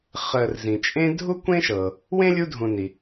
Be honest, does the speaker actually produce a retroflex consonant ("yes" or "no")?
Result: no